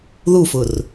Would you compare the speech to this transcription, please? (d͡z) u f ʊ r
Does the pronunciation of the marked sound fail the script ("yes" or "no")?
yes